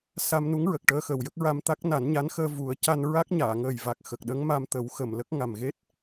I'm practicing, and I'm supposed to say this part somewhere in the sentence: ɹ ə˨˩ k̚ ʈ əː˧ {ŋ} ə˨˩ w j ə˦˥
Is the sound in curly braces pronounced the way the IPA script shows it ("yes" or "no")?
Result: no